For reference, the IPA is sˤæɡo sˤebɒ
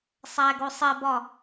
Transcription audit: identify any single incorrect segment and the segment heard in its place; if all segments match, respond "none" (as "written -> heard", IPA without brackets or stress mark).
none